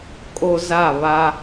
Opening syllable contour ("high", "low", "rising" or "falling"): high